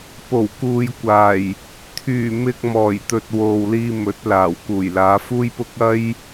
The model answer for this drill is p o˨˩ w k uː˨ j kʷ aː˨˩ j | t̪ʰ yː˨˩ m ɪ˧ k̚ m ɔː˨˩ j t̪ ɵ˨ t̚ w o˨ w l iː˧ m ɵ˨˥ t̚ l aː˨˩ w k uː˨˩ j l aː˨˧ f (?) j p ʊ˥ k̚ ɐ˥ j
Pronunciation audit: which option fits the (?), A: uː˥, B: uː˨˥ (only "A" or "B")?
A